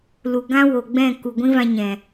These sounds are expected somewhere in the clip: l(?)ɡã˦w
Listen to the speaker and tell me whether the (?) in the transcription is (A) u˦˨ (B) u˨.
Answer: B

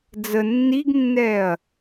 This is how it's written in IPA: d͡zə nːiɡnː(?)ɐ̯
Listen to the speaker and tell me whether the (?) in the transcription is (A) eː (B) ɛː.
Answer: B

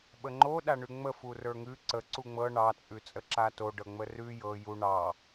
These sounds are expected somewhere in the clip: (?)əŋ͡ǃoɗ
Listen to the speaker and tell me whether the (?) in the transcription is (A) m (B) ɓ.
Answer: B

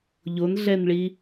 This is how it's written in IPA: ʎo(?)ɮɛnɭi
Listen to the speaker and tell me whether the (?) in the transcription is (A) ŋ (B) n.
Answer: B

